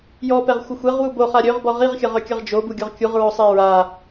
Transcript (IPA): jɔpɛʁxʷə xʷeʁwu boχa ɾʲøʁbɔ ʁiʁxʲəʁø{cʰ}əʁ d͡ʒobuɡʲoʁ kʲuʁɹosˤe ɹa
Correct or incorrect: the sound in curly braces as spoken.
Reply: incorrect: kʲ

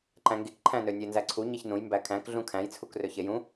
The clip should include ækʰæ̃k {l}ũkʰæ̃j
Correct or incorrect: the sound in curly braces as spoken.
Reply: incorrect: ɮ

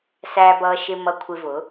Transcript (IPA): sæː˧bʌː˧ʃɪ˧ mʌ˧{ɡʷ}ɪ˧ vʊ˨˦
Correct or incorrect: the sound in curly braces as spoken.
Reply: incorrect: kʷʰ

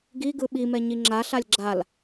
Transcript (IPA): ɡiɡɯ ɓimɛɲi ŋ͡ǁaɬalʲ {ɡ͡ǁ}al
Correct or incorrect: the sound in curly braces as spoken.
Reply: correct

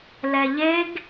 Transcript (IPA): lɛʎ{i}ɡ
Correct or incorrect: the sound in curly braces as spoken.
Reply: incorrect: e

